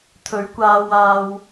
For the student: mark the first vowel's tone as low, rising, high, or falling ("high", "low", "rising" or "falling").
rising